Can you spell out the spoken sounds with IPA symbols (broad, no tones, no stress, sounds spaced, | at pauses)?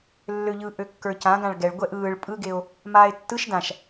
lː ø ʎ ɯ ʔ ø kː ə˞ c ã ɡ ã ɭ ɡ ɛ ɭ ɡʷ ɛ ʔ ɯː ɭ pʼ ɯ ɡ e o̯ | m aː e̯ tː ɯ ʃ d ã ʃ